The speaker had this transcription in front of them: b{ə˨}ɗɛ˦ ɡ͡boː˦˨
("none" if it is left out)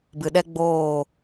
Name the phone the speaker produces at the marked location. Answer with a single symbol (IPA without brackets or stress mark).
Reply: ɨ˨